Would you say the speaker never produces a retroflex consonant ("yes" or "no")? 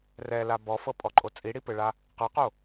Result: no